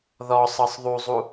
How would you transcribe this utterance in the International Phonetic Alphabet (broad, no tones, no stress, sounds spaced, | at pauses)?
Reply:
ð ɔ sˤ ɤ sˤ ðˤ u zˤ u